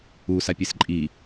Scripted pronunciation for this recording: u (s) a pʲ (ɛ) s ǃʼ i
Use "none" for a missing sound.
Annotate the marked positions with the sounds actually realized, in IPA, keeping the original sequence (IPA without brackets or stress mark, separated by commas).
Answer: s, e